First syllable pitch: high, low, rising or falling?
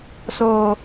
low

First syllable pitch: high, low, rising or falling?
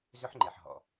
high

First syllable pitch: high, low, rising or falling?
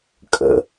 low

